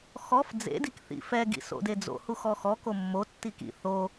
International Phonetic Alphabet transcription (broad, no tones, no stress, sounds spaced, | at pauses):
x ɔ f d͡z ḛ d i k θ ḭ f ɛ ɡ ḭ s o̰ d e d͡z o̰ h u x ɔ x ɔ k o mː o tː i k ḭ θ o